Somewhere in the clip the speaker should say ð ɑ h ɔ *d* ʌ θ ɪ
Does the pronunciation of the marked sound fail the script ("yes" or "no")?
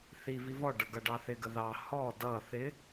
no